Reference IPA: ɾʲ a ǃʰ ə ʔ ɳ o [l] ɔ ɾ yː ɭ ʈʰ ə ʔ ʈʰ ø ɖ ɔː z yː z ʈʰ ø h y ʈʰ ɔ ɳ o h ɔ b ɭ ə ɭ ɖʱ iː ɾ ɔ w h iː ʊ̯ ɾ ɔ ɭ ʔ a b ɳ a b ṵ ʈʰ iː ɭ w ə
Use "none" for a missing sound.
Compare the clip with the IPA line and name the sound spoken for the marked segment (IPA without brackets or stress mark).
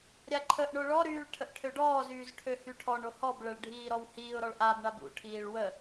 ɭ